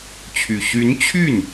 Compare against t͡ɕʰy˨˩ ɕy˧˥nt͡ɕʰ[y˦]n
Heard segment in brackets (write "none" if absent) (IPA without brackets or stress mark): y˥˩